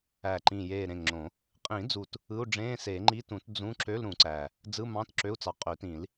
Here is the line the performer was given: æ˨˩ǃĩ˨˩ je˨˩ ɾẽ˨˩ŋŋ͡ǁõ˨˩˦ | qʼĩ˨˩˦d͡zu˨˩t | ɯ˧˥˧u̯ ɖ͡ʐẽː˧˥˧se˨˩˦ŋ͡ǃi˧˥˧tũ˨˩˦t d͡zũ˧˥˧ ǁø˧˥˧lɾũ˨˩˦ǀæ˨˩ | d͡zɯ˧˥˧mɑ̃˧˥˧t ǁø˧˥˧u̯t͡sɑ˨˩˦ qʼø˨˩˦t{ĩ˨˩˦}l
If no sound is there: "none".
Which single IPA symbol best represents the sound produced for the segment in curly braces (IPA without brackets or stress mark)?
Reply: ĩ˨˩˦